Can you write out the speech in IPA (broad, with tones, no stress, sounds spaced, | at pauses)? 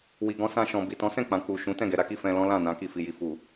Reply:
w i˨ ɡ ɔ̃˧ s ã˧ ʃ ɔ̃˨ b i˨ t ɔ̃˨˦ s ɛ̃˦˨ k͡p ã˨ k͡p u˨ ʃ ũ˨˦ t ɛ̃˦˨ ɡ ɛ˨ ɾ a˧ k i˧ f ɛ̃˧ l ɔ̃˦ l ã˦˨ n ã˨˦ k i˧ f i˨ j i˨ f u˨